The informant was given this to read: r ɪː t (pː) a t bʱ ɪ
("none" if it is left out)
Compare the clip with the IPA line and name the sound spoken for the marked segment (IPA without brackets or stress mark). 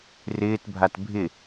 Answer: bʱ